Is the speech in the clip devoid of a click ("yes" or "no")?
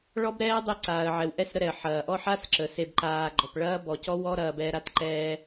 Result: no